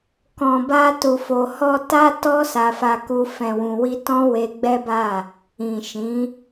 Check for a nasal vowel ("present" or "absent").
present